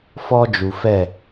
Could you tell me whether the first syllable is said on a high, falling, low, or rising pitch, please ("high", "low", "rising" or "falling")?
high